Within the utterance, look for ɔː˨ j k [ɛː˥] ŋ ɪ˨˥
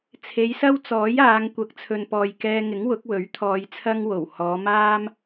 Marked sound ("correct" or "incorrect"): incorrect